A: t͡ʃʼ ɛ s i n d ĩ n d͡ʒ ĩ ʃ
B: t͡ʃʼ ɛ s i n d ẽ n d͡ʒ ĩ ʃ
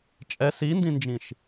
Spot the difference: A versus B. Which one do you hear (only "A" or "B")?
A